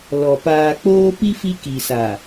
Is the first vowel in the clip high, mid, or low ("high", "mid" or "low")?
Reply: mid